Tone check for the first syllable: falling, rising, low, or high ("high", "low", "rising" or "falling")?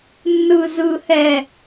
low